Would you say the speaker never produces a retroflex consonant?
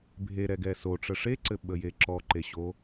no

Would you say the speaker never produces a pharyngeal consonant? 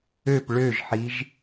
no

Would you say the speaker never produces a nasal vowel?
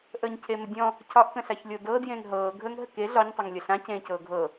no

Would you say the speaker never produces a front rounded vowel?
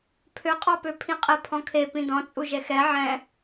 no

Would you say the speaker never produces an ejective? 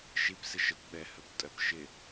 no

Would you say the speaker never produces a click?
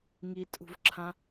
no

